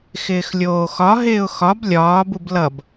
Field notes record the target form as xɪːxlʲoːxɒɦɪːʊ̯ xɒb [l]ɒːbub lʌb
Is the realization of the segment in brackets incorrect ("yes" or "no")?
yes